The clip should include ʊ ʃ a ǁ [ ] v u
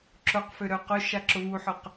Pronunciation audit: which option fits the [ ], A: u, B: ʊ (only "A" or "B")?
B